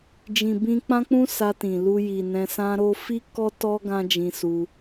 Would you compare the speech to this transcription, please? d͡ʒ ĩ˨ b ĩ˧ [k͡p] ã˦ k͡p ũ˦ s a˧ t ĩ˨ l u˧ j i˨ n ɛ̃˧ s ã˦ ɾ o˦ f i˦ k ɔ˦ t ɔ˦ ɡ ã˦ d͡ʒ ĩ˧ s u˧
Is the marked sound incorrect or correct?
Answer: correct